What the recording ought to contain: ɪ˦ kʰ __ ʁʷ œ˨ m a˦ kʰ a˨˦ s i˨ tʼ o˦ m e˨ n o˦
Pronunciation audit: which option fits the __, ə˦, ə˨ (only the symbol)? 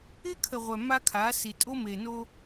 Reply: ə˨